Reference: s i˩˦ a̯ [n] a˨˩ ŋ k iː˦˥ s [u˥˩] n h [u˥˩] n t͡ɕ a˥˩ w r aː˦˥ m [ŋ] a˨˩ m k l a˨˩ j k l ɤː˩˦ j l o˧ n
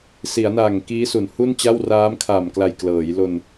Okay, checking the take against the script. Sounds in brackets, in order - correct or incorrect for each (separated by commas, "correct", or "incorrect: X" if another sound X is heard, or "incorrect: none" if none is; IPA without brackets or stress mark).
correct, incorrect: u˩˦, correct, incorrect: kʰ